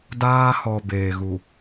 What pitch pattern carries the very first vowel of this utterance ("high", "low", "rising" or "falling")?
high